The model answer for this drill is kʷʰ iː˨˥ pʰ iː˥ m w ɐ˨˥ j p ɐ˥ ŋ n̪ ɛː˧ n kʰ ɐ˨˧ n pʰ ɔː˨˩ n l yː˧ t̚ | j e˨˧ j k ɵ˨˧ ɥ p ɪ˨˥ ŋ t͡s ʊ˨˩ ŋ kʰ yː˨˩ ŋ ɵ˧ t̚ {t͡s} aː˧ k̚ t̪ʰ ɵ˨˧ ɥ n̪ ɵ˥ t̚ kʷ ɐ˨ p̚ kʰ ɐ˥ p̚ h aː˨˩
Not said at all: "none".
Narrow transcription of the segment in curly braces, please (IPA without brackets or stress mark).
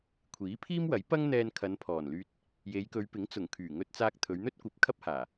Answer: t͡s